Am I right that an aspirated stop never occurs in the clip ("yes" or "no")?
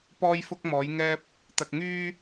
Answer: yes